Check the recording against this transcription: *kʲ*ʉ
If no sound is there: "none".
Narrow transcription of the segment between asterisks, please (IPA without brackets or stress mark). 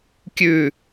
kʲ